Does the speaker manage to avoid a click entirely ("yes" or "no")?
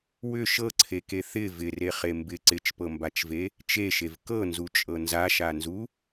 no